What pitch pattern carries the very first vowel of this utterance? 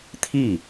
falling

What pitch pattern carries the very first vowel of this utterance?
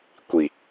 low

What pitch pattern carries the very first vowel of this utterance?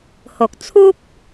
low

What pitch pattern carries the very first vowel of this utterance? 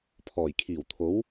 low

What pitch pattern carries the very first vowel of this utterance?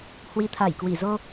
rising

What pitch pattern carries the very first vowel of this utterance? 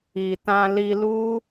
low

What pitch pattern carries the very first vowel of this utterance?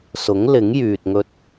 rising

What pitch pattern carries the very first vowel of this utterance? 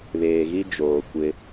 low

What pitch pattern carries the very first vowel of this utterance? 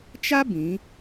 high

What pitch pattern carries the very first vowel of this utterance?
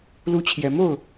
falling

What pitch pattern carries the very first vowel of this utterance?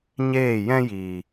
falling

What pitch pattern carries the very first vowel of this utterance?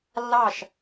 falling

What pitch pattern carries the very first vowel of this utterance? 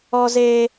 high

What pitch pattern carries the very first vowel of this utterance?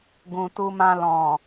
low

